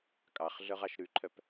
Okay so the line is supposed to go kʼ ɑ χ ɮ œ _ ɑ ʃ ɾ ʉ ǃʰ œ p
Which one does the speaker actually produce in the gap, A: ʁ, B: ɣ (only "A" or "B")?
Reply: A